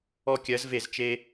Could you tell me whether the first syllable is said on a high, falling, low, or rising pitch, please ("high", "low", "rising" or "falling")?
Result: high